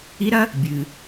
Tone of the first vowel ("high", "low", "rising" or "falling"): rising